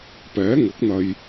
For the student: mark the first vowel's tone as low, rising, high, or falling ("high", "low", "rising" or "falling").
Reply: rising